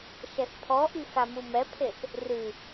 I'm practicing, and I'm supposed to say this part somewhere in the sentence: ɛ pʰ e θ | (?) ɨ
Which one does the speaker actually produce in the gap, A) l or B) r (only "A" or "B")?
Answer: B